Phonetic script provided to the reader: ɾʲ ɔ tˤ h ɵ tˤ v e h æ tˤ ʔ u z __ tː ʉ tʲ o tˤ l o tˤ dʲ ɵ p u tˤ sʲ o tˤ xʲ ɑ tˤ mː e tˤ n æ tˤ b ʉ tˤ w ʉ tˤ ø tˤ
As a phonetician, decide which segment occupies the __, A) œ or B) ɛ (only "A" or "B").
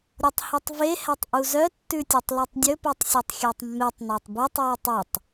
A